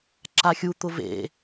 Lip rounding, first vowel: unrounded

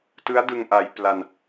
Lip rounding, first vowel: unrounded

